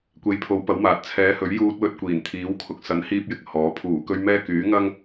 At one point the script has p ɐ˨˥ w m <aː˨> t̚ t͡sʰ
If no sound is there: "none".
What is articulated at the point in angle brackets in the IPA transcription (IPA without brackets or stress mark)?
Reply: aː˨